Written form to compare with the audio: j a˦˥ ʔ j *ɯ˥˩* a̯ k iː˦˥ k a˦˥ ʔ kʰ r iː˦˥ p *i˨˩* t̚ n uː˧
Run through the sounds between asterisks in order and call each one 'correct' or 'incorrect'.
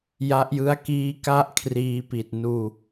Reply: incorrect: ɯ˦˥, correct

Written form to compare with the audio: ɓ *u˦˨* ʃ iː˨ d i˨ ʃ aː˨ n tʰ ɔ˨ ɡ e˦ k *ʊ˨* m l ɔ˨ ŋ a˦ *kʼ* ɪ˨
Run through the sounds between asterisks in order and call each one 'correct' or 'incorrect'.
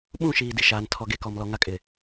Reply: incorrect: ũ˦˨, incorrect: ɔ˨, correct

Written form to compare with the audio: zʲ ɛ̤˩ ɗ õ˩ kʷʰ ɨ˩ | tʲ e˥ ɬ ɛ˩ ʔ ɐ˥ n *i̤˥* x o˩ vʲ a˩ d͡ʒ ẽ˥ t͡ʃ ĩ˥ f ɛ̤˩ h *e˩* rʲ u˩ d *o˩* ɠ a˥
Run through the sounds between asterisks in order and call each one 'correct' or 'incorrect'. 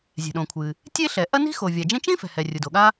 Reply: correct, incorrect: ɛ˩, correct

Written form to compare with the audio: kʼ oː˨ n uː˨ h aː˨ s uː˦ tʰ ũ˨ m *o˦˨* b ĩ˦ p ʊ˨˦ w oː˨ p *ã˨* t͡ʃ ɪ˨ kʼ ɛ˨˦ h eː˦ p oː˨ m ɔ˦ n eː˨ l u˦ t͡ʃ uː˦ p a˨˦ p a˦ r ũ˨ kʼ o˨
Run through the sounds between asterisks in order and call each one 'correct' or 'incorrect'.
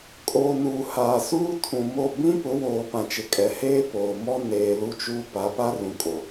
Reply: correct, correct

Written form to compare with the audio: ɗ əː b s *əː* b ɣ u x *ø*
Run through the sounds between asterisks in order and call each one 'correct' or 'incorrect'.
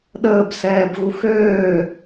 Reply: incorrect: ɛː, incorrect: øː

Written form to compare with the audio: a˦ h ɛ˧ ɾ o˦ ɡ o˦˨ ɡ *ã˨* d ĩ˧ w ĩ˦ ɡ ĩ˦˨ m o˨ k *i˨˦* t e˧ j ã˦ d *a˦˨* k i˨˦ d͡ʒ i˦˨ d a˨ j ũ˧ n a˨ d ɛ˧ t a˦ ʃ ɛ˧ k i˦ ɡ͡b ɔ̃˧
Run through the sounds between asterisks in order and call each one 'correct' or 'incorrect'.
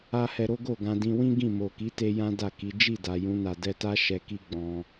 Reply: incorrect: ã˧, correct, correct

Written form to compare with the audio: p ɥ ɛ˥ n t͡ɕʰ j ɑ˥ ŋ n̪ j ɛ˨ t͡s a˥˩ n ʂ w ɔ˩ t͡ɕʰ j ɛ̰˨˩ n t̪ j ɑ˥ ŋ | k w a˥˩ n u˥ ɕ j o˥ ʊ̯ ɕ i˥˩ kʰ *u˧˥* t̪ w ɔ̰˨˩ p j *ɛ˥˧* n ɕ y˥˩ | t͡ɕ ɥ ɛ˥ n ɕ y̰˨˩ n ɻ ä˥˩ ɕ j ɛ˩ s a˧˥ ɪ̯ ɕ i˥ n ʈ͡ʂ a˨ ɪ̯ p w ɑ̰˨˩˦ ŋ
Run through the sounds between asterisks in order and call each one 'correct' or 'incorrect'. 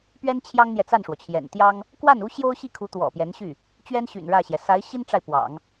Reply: correct, incorrect: ɛ˧˥

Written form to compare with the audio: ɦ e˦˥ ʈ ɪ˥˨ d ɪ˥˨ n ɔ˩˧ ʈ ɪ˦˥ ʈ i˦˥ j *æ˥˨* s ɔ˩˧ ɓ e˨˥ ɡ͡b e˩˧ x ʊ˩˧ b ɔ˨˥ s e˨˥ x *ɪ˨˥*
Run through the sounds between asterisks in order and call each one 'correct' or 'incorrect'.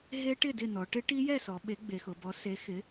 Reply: incorrect: ɛ˥˨, correct

